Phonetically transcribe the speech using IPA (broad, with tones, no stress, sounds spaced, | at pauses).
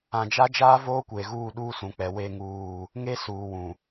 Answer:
ã˨ d͡ʒ a˦ d͡ʒ aː˦ v oː˦ kʷ eː˨ ɣ uː˦˨ ɗ uː˦ s ũ˨ k͡p ɛ˨ w e˦ ŋ uː˦˨ | ŋ e˦ s uː˨ w ũ˨